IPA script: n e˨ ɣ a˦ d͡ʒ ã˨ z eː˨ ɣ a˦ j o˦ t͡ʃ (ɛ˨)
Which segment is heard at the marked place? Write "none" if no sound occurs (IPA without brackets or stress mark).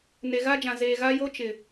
ɪ˨